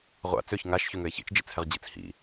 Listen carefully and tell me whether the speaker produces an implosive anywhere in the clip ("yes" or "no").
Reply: no